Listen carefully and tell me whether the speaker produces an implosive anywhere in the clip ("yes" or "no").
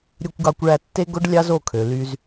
no